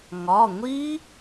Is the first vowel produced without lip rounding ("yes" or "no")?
no